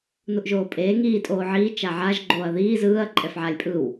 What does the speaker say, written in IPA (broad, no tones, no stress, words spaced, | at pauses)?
nuʔʒoːpʼeː ŋiː tʼoːʕiː t͡ʃaʕaʒ ɡ͡ǃoːɐ̯ðiː zɯːɐ̯ ǃʼɛfʕalʲpʼɯw